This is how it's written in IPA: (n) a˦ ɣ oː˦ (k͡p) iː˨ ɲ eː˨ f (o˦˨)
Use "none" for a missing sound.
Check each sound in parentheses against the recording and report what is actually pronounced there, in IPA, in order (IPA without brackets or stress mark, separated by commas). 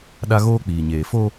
ɗ, k͡p, o˦